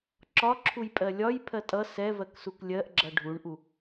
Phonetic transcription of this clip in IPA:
ǁ ɒ ǁʰ u j pʼ ɜ lʲ ɒ j pʰ ɜ tʼ ʌ s ɛ v ɜ k s u k lʲ ɜ ʔ ɡ͡ǁ ʌ ɖʱ u ɳ ʔ u

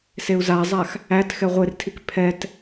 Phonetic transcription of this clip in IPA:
s e u̯ z a zˤ a x | æ t x ɛ ʁʷ e r tʰ i k pʰ ɛ t

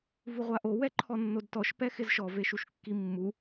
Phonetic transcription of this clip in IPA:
v u ʁʷ a ʔ o w ɛ ǃʰ ɔ nː o d t ɔ ʃ p ɛ x ɪ z ʃ ɔ v e ʃ u ʃ kː i mː u

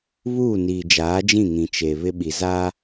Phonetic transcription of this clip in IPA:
β uː˦˨ n iː˨ d͡ʒ aː˨˦ d͡ʒ ĩ˦˨ ŋ ĩ˨ t͡ʃ e˨ β ɪ˦ ɓ i˨ z a˦

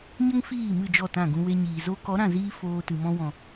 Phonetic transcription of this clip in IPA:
ɲ ə˦ ŋ f iː˦˨ m ɨ˦˨ d͡ʒ ɔ˦˨ t ã˦˨ ɡ ũ˧ w e˧ ɲ iː˨ z o˧ k ɔ˨˦ ɾ ã˦˨ z iː˦ f oː˧ t ɨ˨ m ɔ̃˧ w ɔ̃˨

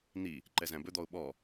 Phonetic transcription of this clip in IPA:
n̪ i | ǃ ɛ z æ̃ b ɵ d̪ ɔ ʊ̯ ɓ ɔ

